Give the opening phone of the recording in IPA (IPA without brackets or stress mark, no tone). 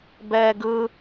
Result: b